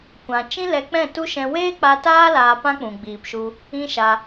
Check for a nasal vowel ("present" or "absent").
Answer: present